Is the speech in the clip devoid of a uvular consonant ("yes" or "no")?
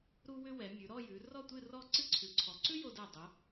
yes